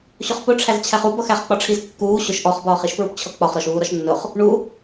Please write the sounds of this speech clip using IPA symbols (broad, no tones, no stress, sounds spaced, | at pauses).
ɕ ʊ χ p ʊ ʈ͡ʂʰ æ z t͡ɕʰ æ χ u b ʌ x æ χ k͡p ɒ ʈ͡ʂʰ i z kː uː ɕ ʊ ʃ ʔ ɔ χ b ɒː χ i ʃ p ɹ u p t͡ɕʰ ʌ k͡p ɒ χ ɾ ɔ ʃ uː ɾ ɒ ʃ nː ʊ χ | ɳ u